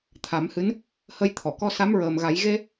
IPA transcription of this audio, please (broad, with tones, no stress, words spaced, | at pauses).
t̪ʰa˨˩˦mhɨ˧˥n | hə˧jt̪ʰɔ˨˩˨kɔ˧ sa˧˥mɹəː˨˩mɣa˨˩˦j ɣe˧